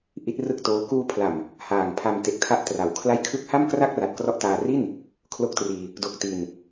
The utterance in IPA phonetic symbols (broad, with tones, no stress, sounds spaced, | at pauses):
ʔ i˦˥ t̚ r ɯ˥˩ k̚ t oː˦˥ k uː˧ pʰ l a˨˩ m | h aː˨˩ ŋ pʰ a˧ m t e˨˩ k̚ tʰ a˦˥ ʔ t r a˩˦ w kʰ l a˥˩ j kʰ ɯ˦˥ k̚ h a˥˩ m k r a˥˩ k̚ r a˨˩ t̚ k r ɔ˦˥ ʔ t aː˧ r i˥˩ n | kʰ l o˦˥ k̚ t r iː˧ | d o˨˩ k̚ t i˧ n